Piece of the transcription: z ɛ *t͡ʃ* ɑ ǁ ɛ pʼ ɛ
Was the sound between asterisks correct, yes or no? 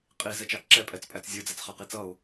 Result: yes